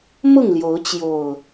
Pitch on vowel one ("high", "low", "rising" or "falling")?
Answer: falling